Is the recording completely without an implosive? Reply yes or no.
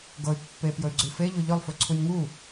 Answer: yes